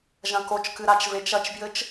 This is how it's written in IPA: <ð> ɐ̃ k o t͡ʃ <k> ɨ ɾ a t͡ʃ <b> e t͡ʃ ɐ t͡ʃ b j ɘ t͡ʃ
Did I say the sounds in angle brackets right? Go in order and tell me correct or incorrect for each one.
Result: incorrect: ʒ, correct, incorrect: v

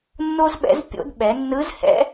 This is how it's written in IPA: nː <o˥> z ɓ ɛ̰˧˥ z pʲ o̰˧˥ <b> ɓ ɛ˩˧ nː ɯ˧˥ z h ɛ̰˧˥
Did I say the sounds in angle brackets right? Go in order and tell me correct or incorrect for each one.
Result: correct, incorrect: d

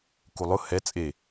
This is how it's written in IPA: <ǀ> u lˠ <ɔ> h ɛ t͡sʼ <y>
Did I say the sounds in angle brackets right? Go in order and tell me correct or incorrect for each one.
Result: incorrect: k, incorrect: ʊ, incorrect: e

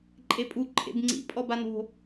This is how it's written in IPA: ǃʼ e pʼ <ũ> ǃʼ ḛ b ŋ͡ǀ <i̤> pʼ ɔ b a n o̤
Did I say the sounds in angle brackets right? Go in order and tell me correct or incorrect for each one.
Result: incorrect: u, incorrect: ḭ

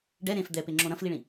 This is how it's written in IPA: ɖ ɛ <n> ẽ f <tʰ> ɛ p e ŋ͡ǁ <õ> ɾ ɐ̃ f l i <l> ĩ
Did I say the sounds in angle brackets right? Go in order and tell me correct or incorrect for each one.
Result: incorrect: ɾ, incorrect: d̪, correct, incorrect: ɭ

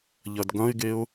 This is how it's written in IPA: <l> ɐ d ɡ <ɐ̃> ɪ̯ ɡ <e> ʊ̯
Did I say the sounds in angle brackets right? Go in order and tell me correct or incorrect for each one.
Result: incorrect: ʎ, correct, correct

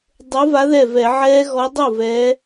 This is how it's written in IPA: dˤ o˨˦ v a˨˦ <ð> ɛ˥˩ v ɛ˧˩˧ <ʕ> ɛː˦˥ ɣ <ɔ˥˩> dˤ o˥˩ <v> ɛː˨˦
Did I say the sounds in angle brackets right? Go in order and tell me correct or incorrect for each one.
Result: correct, correct, incorrect: ɔ˨˦, correct

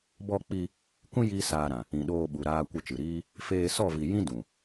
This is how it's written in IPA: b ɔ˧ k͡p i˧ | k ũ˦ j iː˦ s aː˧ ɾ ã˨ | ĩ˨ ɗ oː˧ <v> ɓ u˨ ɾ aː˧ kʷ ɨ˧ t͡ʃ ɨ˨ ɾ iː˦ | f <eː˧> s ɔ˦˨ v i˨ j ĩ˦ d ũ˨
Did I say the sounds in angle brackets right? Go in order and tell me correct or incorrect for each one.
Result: incorrect: none, correct

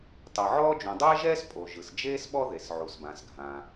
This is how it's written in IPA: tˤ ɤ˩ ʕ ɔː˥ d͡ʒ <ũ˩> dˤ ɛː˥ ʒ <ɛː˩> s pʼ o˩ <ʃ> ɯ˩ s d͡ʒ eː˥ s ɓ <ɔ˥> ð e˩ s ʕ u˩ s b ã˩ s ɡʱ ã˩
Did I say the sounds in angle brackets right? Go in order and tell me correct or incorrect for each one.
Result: correct, incorrect: ɛː˥, incorrect: ʒ, correct

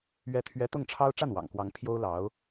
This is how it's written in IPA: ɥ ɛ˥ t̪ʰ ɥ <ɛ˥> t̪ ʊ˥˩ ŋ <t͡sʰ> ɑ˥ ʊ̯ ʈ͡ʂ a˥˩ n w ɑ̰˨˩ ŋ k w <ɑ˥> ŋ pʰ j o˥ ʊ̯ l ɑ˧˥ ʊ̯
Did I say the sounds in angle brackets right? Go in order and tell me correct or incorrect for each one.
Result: correct, incorrect: ʈ͡ʂʰ, incorrect: ɑ˧˥

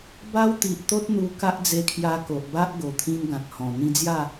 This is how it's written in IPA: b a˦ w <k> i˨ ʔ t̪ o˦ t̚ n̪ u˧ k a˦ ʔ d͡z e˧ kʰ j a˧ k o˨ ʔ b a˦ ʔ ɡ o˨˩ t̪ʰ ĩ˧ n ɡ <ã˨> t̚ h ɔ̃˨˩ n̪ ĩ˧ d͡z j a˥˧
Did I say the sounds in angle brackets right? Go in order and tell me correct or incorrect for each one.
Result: incorrect: t̪, correct

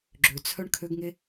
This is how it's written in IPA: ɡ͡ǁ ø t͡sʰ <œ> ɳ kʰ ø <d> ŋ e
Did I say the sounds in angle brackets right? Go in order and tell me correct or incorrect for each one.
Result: correct, incorrect: ɡ

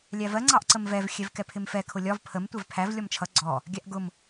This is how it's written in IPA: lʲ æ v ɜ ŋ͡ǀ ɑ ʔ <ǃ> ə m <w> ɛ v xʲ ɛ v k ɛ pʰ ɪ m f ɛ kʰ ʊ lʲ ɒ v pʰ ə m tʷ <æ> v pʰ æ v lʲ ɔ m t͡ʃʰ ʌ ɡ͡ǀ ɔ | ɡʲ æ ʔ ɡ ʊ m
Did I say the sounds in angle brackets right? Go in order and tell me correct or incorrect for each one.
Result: incorrect: ǀ, incorrect: v, incorrect: ɛ

